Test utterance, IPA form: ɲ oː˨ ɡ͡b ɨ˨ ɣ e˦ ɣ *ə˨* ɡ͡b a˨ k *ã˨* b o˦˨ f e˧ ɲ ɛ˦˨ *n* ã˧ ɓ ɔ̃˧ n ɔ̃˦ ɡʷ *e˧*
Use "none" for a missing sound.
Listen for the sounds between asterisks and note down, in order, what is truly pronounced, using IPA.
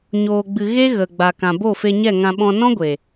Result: ə˨, ã˨, ŋ, e˨

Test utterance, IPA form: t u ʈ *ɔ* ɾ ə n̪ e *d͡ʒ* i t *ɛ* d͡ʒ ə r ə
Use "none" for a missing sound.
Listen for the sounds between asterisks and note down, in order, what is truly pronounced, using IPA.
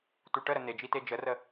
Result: ə, d͡ʒ, e

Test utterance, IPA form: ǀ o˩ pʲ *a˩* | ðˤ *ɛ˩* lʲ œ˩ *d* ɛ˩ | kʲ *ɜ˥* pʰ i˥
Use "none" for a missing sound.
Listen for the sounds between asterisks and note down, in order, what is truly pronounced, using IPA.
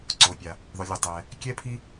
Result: a˩, œ˩, tˤ, ɛ˥

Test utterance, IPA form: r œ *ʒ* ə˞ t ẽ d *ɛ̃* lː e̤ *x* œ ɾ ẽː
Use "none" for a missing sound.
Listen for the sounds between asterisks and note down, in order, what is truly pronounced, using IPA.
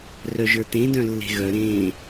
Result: ʒ, œ̃, ɣ

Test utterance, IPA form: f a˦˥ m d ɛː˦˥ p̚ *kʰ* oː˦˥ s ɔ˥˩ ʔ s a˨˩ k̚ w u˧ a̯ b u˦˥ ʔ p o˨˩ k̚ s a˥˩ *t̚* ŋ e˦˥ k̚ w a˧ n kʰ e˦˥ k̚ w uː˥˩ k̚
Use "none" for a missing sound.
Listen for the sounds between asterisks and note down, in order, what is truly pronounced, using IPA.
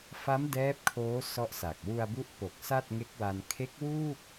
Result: kʰ, t̚

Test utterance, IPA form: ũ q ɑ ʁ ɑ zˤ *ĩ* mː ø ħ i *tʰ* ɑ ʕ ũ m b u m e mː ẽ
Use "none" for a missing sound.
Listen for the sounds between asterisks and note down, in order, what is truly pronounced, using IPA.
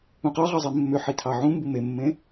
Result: i, tʰ

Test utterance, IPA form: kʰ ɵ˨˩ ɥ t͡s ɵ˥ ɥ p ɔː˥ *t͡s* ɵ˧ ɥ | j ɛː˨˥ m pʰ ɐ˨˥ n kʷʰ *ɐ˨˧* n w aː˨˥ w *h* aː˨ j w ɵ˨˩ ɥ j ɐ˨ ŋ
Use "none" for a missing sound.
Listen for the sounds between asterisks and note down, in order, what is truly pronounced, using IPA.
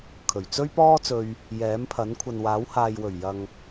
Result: t͡s, ɐ˨, h

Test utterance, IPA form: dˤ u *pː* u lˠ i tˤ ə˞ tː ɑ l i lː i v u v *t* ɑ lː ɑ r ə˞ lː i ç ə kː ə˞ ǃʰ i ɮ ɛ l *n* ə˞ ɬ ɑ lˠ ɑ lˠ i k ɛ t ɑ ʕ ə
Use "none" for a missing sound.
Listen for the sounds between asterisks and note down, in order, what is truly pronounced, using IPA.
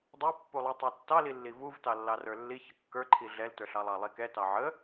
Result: pː, t, t

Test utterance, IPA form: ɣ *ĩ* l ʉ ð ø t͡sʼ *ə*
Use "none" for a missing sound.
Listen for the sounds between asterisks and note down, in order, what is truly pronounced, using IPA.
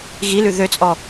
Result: i, ɔ

